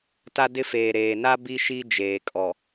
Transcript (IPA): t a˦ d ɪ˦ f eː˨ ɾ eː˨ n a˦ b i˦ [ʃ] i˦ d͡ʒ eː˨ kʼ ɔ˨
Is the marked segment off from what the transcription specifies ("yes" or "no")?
no